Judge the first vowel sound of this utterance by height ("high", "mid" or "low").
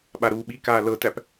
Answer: low